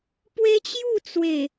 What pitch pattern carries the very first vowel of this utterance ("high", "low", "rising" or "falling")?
high